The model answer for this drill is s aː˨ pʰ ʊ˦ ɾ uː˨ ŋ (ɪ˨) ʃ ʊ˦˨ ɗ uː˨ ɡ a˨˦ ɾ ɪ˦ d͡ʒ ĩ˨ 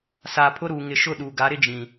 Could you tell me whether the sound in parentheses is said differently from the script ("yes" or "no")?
no